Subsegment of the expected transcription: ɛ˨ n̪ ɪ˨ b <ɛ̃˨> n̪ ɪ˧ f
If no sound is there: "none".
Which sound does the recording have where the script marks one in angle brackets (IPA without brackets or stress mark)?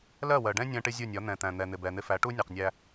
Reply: ɛ˨